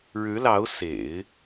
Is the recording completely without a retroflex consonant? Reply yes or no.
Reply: no